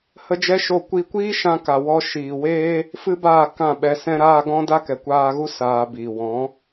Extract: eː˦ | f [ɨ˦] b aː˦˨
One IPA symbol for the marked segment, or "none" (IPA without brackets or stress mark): ɨ˦